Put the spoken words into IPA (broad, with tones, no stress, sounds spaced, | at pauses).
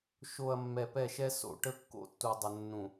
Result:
ʃ o˨ ɐ̯ mː ɛ˨ p ɛ˦˨ ʃ ɛ˦ s o̰˨ ʈ ə˦ kː o̰˦ tː u˨ dˤ ə˨ nː ũ˨